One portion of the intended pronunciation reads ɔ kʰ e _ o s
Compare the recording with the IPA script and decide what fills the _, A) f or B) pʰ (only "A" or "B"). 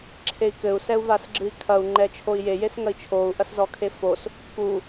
A